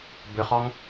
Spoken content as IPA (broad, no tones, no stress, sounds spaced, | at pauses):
b ʏ χ ɔ ŋ